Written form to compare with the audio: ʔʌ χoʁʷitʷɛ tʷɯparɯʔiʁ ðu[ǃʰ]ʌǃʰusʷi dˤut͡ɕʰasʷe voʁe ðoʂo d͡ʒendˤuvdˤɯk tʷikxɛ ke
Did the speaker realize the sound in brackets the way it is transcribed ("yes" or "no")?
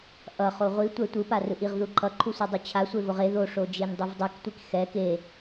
yes